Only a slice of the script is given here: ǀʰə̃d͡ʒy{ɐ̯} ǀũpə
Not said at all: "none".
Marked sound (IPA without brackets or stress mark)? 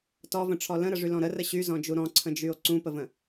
o̯